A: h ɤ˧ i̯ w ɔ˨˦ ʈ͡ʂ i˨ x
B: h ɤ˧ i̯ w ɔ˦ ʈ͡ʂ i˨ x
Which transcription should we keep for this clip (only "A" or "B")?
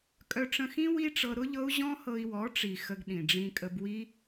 A